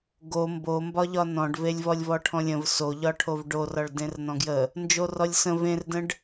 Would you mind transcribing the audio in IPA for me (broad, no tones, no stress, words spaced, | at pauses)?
ɡo mbombɒʎɒ nɔ̃ɖvelʲ vɔlʲvɔʈʰɔ̃lʲə̃v soʎɒʈʰov ɖo rɒɭdẽrnɔ̃ɡjə | nd͡ʒorɔlʲsə̃ vẽrdə̃ɖ